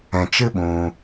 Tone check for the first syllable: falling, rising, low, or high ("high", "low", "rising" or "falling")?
low